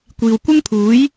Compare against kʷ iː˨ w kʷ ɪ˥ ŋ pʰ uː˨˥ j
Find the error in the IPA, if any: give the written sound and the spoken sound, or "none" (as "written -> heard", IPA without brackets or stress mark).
none